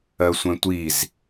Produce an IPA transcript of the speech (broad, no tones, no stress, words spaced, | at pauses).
ɜsʷɛ̃tʷiz